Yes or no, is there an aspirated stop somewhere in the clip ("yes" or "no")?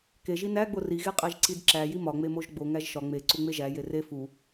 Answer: no